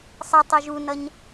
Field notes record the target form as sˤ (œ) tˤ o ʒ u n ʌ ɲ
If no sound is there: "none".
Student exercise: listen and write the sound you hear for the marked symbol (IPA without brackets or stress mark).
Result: ɛ